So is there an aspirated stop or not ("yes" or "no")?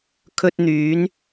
yes